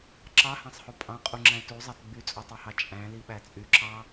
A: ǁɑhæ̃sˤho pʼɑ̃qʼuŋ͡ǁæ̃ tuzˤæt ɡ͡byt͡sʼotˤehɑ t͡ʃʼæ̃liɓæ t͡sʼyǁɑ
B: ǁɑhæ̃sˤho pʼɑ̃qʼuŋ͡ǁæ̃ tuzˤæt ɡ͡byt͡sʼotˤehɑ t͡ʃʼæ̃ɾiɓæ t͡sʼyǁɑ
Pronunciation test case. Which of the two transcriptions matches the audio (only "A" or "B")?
A